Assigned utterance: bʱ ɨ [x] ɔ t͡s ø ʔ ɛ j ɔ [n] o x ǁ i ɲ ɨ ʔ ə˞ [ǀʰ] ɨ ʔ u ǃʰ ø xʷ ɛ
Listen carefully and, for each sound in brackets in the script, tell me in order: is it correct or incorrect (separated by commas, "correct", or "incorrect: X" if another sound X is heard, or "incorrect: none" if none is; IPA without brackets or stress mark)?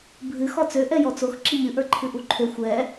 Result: correct, incorrect: t͡s, incorrect: ǃʰ